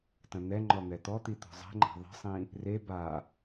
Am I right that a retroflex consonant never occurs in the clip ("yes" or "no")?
yes